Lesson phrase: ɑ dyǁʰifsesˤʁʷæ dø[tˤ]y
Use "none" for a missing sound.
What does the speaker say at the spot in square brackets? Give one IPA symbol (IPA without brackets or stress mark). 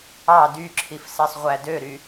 ɾ